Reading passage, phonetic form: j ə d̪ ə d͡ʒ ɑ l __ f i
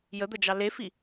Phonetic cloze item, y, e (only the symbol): e